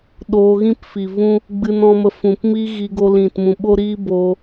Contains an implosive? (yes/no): yes